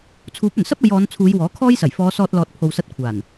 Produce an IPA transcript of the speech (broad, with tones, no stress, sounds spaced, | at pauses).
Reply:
t͡sʰ uː˨˥ p̚ ɵ˨˩ n s ɐ˥ p̚ ɐ˨˧ j ɔː˨˧ n t͡sʰ uː˨˧ j w ɔː˨˥ kʰ ɔː˥ j s ɐ˨˩ j f ɔː˨˧ s ɔː˧ t̚ l ɔː˨ t̚ pʰ o˨ w s ɐ˧ t̚ kʷʰ aː˨˩ n